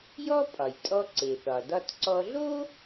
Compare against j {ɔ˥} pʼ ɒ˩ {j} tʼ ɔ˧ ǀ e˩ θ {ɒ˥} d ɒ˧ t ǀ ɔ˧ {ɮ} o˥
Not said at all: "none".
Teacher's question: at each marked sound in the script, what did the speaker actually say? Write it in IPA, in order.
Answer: ɔ˥, j, ɒ˩, ɮ

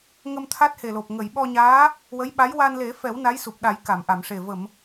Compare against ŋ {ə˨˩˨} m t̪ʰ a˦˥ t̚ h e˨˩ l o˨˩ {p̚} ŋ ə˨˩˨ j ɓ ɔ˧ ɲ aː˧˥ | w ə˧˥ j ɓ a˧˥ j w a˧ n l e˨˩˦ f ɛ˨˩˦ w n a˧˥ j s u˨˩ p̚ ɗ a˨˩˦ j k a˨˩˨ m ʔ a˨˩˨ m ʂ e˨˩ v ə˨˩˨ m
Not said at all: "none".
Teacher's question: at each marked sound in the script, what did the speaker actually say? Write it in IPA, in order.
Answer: ə˧, p̚

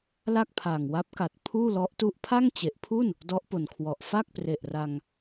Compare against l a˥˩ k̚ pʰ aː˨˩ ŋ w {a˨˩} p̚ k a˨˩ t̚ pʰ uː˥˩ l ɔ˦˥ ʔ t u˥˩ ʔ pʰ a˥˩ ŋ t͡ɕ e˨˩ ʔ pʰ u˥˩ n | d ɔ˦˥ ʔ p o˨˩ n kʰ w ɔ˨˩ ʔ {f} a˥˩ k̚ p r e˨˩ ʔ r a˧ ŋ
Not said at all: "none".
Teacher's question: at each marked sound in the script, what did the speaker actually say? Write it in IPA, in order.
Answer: a˦˥, f

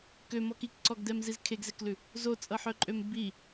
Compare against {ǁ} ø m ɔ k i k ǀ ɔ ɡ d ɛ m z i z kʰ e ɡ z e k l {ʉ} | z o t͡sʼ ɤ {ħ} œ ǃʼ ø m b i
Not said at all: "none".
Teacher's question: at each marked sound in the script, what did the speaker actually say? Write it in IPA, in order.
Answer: k, ʉ, ħ

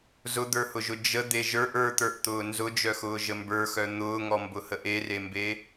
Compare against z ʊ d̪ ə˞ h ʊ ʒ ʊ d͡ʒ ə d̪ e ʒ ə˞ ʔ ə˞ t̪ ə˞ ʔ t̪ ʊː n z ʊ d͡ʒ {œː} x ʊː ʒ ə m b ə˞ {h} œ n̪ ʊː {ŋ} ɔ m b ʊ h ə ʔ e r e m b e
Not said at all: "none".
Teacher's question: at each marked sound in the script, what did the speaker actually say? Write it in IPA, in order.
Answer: œ, x, ŋ

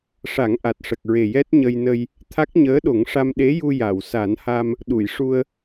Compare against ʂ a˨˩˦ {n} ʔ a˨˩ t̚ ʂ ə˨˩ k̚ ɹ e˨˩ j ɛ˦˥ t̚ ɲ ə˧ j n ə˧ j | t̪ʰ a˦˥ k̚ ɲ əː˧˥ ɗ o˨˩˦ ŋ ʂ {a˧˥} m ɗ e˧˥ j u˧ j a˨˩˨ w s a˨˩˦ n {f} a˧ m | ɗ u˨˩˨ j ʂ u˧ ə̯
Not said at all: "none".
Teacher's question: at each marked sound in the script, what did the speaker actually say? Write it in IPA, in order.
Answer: ŋ, a˧, h

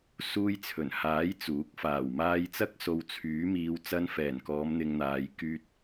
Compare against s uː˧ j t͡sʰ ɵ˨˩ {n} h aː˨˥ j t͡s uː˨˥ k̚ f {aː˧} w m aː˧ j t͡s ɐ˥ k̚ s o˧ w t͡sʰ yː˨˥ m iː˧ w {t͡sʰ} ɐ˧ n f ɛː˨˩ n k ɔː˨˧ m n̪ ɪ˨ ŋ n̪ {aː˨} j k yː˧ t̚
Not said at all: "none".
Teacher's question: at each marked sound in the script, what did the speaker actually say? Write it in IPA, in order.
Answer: n, aː˨˩, t͡s, aː˨

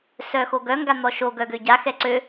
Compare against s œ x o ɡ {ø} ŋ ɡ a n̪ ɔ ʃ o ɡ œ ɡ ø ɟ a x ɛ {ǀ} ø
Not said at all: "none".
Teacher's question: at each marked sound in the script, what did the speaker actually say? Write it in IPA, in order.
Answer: œ, ǀ

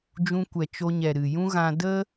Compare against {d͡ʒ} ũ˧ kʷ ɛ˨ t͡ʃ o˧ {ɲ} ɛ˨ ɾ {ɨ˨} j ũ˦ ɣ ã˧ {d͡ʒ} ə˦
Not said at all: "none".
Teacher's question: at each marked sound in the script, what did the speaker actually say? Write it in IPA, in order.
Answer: d͡ʒ, ɲ, ɨ˨, d

